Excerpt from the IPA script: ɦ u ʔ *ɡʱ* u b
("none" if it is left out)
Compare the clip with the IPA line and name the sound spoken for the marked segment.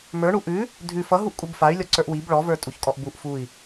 kʼ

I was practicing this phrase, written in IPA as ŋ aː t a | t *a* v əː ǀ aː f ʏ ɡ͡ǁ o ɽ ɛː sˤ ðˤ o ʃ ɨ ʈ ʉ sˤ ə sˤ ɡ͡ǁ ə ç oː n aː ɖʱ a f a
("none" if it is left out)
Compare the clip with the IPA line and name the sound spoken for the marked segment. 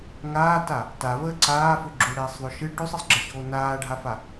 a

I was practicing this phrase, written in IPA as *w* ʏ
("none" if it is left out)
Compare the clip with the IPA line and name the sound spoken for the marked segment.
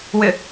w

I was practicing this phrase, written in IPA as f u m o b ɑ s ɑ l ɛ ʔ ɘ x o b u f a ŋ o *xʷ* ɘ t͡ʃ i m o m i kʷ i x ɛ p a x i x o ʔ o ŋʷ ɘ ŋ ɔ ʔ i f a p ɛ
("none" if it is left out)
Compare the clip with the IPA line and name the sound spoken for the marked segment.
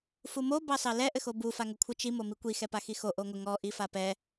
kʷʰ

